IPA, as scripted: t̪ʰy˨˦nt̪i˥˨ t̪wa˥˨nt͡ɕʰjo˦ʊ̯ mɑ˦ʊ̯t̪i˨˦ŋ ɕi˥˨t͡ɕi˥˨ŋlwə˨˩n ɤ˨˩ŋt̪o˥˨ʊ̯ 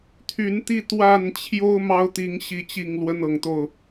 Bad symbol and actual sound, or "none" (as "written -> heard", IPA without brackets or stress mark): ə˨˩ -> ə˦